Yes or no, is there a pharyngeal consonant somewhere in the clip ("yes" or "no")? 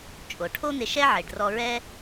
yes